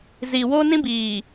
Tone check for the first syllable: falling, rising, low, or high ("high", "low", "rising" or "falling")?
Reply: low